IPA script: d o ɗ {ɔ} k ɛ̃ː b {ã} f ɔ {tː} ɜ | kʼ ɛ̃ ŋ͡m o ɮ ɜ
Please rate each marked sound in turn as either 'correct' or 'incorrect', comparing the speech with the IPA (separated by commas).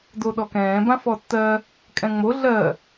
correct, correct, correct